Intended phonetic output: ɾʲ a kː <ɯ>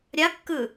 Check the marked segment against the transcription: correct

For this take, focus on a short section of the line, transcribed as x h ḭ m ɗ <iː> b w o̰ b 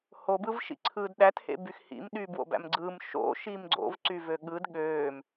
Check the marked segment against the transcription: incorrect: yː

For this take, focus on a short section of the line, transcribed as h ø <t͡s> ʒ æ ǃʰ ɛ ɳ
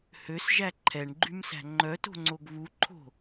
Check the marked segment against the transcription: incorrect: s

